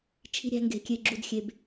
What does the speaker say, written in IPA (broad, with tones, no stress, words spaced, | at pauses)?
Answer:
t͡ʃʰi̤˧ɾʲæ̤˧ŋɡe̤˨kʲe˨ ɡ͡ǁu˨dxʲe˨b